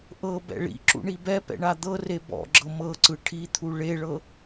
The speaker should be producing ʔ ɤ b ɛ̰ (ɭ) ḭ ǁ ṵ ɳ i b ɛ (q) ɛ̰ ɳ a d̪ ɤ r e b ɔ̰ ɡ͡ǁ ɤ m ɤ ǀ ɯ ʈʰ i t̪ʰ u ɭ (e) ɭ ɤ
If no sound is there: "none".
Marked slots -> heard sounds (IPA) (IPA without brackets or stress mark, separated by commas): ɭ, p, e